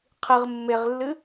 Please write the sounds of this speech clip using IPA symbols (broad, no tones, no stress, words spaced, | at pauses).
qʰɨʁ mːeʁlːɨ